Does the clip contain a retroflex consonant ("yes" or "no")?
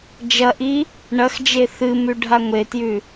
yes